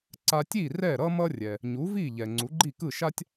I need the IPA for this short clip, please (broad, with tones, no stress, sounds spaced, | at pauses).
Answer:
ǀ a˧ tʲ i˥˩ r ɛ˥˩ ɾ ʌ˥ m ʌ˥ rʲ ɛ˩ | ɲ u˩˥ v i˥˩ ʎ ɛ˩ ŋ͡ǀ u˩˥ ɡ͡ǃ i˥˩ k ɯ˥˩ ʃ a˥ tʲ